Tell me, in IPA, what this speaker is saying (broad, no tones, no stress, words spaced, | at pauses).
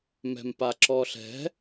mɛ̤mpaǁɔɬɛ̤